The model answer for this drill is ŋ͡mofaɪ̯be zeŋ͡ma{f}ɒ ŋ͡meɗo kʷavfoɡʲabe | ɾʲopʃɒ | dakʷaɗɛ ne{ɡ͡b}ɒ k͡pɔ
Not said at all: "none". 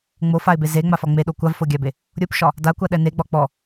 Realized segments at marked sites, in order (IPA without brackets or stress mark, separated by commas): f, ɡ͡b